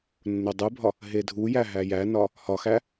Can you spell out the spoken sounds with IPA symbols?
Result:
nːodˤubʱɒ | ɦedʱujæ ɦæjænɒ | hɒxæ

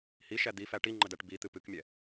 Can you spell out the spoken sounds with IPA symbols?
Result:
hiʃæ d̪ifæ ʈiŋ͡ǃədæʈ bit̪ɨ pɨkmʲɛ

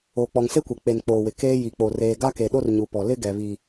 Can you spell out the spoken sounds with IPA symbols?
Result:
oː˨k͡pɔ˨ŋ se˦kʷɛ˨k͡pe˨n k͡poː˨wɪ˨keː˦ ji˨k͡po˨ reː˨ɡa˦ke˨ɗo˦r ɲu˨pɔ˨ lɪ˦ ɡɛ˨ βi˨

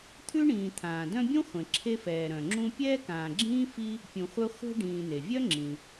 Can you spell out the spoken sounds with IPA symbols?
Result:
t̪ʰʉ˥ɳĩː˨ t̪ʰãː˩dœ̃˦bʲũ˥ χʷẽ˨ǁʰe˦fɛː˨ ɾœ̃˩ŋ͡ǁũ˦ pʲɛː˥kãː˨ɡ͡ǁĩː˥ fi˥ | pʲũ˨χʷœ˦ χʷe̤˦ ɖĩː˨n̪e˩vʲœ˥ ŋ͡ǁĩ˩

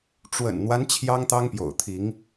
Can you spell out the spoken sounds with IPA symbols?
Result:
ʈ͡ʂwə̰˨˩nn̪wa˦n t͡ɕʰjɑ˦ŋt̪ɑ˦ŋpjo̰˨˩ʊ̯ t̪ʰi˨˦ŋ

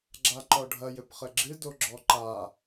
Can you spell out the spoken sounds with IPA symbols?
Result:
ɡ͡ǁaǃɔɖʱɐ jɘpχɘɡ͡ǁɨ doɡ͡ǁɔǃa

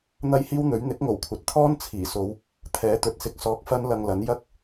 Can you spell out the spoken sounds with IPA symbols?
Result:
n̪ɐ˥jhiː˥wn̪ɵ˨˥ɥ n̪ɪ˨˥k̚ŋo˨˩wkʷʰɐ˨t̚ t̪ʰɔː˥nt͡sʰiː˨˩so˨˧w | t̪ʰɛː˨˧ t̪ɵ˨t̚sɪ˨˥k̚sɔː˨˥k̚ fɐ˥nlɐ˧ŋlɐ˨˥n jɐ˥k̚

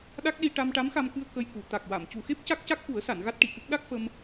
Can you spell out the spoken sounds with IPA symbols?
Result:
ɗa˦˥k̚ɗi˧ ʈa˧mʈa˧˥mxa˧mkɨ˧ə̯ kə˧jku˨˩˨ t̪a˨˩k̚wa˨˩˨m cu˨˩xe˦˥p̚ ca˦˥k̚ca˦˥k̚fu˨˩˦ə̯sa˨˩˨n ɣa˦˥t̚ʈi˨˩˨kɨ˦˥k̚ ɗa˦˥k̚fə˧m

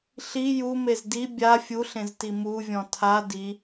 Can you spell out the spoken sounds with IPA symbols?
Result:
ɬi jumez di bʲa fʲuɬẽzti muvʲɔ̃ tʰa di

